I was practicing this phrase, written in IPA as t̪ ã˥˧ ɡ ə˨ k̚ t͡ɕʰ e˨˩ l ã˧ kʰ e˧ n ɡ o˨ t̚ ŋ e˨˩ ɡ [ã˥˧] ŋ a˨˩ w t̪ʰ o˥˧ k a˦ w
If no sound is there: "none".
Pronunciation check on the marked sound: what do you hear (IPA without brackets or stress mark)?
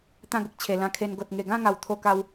ã˥˧